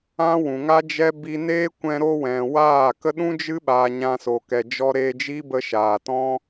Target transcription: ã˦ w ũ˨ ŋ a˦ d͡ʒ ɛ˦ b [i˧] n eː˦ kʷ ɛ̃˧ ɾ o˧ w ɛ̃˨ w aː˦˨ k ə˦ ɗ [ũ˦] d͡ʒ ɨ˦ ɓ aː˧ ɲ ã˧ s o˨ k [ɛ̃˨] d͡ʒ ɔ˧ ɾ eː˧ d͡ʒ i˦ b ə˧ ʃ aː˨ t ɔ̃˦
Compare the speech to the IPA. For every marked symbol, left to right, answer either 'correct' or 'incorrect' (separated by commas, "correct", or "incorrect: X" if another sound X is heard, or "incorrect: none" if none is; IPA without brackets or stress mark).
correct, correct, incorrect: ɛ˨